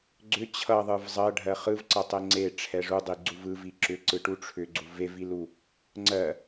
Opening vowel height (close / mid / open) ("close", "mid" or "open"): close